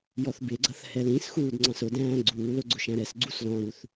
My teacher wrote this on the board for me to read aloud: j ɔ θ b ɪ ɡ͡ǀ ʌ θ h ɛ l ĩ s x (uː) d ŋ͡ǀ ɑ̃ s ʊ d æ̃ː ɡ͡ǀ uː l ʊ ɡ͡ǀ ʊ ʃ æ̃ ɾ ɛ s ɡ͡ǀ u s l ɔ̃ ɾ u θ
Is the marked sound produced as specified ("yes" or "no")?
yes